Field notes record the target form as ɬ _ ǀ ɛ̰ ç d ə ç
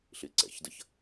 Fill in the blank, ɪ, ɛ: ɪ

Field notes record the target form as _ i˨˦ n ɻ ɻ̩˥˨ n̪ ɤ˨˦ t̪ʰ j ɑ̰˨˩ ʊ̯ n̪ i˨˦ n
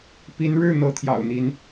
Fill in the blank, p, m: p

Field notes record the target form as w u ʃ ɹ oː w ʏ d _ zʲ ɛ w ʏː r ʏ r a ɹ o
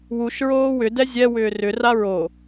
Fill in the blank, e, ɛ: ɛ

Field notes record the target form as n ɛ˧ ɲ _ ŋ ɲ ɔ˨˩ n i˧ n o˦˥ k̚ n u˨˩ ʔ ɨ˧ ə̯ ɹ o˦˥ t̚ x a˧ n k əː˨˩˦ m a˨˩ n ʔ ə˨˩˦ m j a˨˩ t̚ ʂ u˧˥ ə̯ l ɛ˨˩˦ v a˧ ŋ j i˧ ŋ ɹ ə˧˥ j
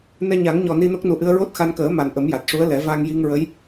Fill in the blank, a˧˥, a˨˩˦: a˨˩˦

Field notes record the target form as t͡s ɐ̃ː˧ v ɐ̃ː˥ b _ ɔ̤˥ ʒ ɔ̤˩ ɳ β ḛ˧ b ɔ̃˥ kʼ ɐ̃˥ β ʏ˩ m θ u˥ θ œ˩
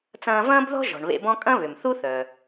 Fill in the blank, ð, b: ð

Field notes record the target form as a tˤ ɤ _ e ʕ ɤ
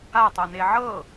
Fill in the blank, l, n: n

